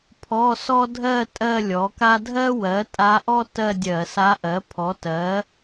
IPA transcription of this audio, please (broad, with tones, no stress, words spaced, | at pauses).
pʰɔ˧˥˧sɔ˥ dʱɜ˥˧ tʼɜ˥˧lʲɔ˩˥ka˥ dʱɜ˥wɜ˩˥ tʼa˧˥ʔɔ˥ tɜ˥˧dʲɜ˧˩˧sa˧˥ʔɜ˩˥ pʰɔ˩˥tɜ˩˥